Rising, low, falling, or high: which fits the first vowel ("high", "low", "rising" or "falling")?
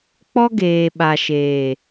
high